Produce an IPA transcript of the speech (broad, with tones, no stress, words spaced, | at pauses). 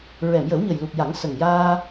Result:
ɹɛ˨˩˨mjə˨˩˦wɲə˨˩jlu˨˩k̚ ja˨˩˦ŋsə˨˩ŋjaː˧